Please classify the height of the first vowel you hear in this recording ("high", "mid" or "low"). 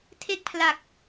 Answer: mid